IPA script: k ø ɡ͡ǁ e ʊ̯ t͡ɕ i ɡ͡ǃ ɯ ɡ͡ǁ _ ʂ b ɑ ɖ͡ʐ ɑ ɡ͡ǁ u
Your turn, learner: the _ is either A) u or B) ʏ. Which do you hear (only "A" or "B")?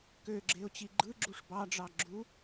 A